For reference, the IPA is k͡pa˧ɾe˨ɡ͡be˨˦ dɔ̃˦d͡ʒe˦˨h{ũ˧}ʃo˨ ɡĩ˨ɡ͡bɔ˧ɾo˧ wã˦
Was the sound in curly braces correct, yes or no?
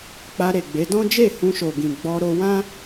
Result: yes